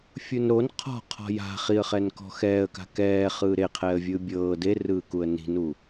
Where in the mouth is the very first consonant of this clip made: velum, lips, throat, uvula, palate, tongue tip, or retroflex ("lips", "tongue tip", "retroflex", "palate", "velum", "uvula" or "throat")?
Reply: lips